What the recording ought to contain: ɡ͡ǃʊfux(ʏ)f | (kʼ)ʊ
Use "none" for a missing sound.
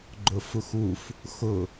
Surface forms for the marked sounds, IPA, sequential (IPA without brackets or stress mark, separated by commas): u, x